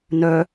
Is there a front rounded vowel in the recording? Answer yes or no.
yes